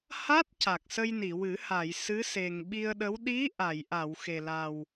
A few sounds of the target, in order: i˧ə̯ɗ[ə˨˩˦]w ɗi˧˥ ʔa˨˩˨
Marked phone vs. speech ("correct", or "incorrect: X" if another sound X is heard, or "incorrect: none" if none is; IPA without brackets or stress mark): incorrect: ə˧˥